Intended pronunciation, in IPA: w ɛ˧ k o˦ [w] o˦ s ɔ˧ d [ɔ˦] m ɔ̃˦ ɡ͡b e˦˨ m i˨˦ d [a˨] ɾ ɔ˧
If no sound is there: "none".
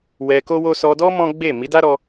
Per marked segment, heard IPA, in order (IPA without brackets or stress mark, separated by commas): w, ɔ˦, a˦